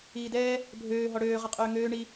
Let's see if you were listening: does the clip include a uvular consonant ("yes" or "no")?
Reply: yes